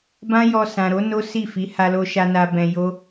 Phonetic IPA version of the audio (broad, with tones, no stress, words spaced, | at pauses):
bã˦jɔ˧ sã˨ɾo˨˦ no˦ si˦˨fi˨˦ ha˧lo˧ʃa˧na˧ bɛ̃˧jo˦